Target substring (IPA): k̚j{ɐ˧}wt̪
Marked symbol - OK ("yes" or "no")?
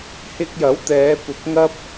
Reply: no